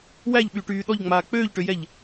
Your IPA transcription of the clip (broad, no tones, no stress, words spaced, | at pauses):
wæʎɓyːʈyː ɗɔʎŋ͡maː k͡pøːʎʈøjɛʎ